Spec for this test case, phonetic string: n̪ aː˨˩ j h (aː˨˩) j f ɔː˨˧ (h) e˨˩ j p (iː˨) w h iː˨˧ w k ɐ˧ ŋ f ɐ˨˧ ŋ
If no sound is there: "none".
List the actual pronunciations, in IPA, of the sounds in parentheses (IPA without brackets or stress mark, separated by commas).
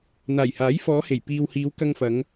aː˨˥, h, iː˨